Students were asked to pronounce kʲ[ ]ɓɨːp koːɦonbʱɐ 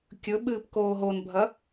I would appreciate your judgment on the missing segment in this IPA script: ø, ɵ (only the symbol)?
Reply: ɵ